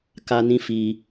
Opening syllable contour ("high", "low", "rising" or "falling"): high